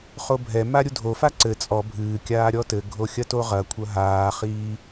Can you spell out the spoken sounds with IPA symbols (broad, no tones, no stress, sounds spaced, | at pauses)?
χ o bʱ ɛ m a ɾʲ u dʱ o f a ǀ ɘ t͡sʼ ɔ bʱ ɨː kʲ aː ɾʲ ɔ t ɘ ɡʱ o xʲ ɐ t o ʁ ɐ kʷʰ ɐ ɦ aː χ iː